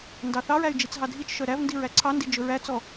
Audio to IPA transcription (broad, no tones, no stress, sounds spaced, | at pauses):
n d ɑ θ ɑ ɹ æ y̯ d͡ʒ i t͡s ɦ ɑ dʱ i t͡ʃ ʃ œ ɾ æ v n d i ɹ æ ǀʰ ɑ n d i d͡ʒ ɵ ɹ æ t͡s ɔ